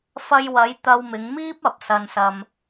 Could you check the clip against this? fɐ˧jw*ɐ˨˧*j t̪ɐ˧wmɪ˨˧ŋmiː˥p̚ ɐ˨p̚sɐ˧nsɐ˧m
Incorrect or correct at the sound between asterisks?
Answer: correct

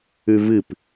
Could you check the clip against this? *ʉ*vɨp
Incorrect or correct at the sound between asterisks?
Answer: correct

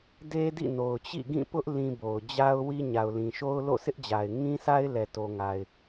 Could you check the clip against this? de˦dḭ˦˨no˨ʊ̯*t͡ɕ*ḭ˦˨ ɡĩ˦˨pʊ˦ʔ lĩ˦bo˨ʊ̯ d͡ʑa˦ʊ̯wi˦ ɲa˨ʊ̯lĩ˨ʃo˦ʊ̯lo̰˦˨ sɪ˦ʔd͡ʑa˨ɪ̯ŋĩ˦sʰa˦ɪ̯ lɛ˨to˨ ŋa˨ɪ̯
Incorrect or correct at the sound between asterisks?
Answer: correct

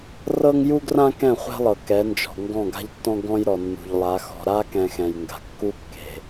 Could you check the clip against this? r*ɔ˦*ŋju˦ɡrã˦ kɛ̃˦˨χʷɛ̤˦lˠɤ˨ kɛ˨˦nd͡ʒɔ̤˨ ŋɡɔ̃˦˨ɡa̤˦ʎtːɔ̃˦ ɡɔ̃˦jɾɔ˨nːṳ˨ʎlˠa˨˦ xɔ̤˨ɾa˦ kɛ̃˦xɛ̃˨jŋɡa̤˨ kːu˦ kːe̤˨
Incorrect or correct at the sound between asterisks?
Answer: incorrect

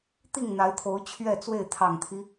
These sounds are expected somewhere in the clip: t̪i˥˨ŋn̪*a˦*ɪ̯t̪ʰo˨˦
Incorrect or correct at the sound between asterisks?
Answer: incorrect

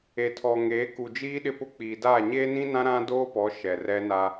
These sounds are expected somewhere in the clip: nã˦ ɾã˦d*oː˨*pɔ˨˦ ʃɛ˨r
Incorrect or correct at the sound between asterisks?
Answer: incorrect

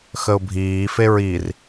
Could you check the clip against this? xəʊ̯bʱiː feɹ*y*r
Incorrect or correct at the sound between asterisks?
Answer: incorrect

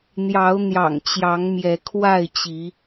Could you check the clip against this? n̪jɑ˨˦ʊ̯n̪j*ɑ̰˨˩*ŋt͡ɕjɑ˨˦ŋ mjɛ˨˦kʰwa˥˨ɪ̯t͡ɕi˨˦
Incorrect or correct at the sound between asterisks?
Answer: correct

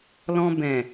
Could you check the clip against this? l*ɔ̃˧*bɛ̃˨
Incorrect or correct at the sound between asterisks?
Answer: correct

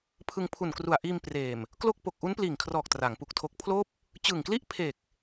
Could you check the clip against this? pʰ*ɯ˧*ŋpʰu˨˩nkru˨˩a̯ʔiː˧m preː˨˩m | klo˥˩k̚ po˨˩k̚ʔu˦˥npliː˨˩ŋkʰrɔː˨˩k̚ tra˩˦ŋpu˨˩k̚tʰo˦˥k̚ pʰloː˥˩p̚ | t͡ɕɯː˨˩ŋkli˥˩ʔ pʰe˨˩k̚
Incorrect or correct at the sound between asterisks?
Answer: correct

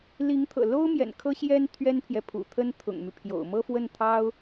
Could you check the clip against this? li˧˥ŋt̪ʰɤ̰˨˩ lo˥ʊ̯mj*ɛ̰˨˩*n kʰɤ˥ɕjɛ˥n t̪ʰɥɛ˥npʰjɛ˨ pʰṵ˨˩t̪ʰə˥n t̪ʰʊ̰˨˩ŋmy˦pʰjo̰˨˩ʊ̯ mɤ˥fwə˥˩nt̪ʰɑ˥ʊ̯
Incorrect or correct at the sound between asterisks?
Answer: correct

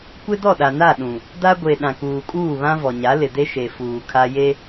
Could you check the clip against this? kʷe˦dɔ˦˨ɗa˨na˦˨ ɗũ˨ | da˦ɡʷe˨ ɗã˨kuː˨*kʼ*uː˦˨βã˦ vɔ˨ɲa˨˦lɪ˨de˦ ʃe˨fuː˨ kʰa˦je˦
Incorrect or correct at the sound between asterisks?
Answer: correct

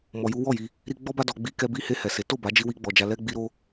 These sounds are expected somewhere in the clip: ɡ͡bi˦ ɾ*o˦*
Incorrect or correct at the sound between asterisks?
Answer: correct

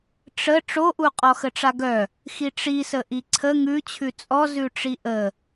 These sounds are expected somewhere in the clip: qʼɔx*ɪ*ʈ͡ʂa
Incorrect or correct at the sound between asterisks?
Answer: incorrect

